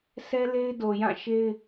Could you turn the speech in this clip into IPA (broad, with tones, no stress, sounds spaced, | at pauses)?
sʰ ɛ˦ l e˦ ɪ̯ d o˨ j ã˦˨ ʃ e˦ ɪ̯